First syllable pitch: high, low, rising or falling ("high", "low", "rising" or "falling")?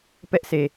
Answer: high